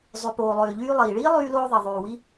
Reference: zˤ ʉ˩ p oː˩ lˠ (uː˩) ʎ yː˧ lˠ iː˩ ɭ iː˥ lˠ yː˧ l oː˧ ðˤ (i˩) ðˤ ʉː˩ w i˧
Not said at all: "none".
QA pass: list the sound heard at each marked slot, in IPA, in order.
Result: øː˩, i˩

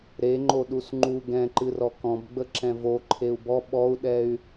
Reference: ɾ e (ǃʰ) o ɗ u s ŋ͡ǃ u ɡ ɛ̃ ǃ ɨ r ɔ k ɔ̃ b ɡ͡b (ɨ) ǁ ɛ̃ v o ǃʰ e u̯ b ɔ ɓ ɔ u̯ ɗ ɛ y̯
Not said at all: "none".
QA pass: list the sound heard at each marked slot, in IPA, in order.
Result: ŋ͡ǃ, ə

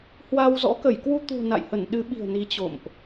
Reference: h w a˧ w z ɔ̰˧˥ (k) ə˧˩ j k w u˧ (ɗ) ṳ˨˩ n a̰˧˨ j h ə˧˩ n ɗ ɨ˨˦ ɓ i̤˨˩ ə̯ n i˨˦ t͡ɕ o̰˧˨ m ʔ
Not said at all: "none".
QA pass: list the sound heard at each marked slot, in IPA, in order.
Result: k, t̪

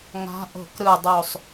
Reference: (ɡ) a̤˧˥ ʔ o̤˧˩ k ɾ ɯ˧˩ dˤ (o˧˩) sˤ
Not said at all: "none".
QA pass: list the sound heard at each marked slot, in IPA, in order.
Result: ŋ, o˧˩

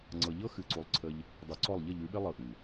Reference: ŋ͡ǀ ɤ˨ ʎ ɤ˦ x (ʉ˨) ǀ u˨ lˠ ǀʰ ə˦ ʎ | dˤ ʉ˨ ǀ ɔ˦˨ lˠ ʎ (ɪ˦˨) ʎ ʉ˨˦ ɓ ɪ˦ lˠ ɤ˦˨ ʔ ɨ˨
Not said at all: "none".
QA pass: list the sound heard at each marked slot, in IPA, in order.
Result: ɨ˨, ə˦˨

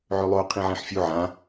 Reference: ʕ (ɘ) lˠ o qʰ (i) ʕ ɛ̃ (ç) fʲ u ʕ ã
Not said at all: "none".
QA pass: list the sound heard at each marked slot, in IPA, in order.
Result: ø, ĩ, ħ

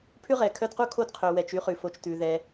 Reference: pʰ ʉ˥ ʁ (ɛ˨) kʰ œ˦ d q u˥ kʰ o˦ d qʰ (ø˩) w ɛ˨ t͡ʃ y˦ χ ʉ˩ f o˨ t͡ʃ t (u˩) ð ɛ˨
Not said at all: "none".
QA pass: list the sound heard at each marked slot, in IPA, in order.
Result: ɛ˩, ø˩, ʉ˩

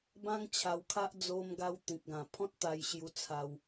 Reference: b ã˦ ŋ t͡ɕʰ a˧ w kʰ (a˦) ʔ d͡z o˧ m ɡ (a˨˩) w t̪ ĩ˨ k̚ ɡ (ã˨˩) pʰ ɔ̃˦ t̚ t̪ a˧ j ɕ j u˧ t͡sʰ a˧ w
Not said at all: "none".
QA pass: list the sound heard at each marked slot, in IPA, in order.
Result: a˦, a˧, ã˨˩

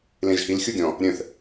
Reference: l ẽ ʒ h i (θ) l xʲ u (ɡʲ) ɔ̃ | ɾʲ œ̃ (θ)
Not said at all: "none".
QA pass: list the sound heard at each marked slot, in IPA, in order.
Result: none, ɡʲ, θ

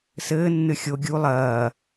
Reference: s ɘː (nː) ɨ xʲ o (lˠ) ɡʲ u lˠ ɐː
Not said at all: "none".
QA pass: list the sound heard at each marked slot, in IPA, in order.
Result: nː, none

